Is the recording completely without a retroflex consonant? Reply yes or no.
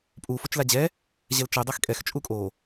yes